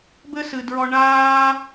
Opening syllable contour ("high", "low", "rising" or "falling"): high